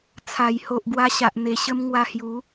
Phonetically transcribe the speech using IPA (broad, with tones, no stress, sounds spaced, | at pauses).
t͡sʰ a˨˩ j h o˨ ʔ ɡ w a˧ ɕ a˨ ʔ n̪ e˨˩ ɕ ə˧ m ŋ w a˧ h j u˨˦